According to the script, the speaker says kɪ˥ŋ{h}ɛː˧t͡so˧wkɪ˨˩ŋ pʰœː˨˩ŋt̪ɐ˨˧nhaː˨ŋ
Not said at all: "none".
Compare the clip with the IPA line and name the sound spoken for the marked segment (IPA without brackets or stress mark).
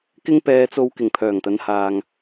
p